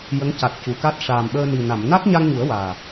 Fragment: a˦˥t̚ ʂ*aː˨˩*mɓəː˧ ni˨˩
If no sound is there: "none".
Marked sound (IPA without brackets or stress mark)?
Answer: aː˨˩